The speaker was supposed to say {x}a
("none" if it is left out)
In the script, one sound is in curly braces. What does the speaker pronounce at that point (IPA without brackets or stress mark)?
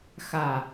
x